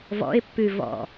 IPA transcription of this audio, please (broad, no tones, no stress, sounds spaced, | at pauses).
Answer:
v ɔ̰ ɪ̯ pː ʉ v ɔ̰